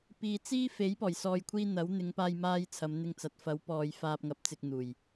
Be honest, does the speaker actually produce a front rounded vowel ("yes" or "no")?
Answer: no